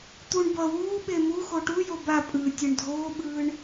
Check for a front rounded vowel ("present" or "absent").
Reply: absent